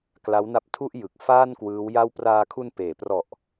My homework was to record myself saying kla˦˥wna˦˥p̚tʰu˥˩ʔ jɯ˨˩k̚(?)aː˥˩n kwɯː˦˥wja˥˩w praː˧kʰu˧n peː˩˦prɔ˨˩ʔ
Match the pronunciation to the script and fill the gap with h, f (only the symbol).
f